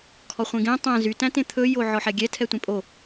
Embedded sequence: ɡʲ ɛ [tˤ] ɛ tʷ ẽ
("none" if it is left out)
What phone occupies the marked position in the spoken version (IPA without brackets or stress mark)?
tʰ